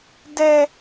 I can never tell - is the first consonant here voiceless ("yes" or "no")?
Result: no